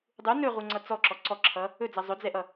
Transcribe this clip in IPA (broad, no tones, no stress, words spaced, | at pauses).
dˤu nɵʁuŋ͡ǀʌ t͡sɔǁɔ ǀɔǁʰʌ | ɵd͡zʌ zˤɵd͡zɛʔʌ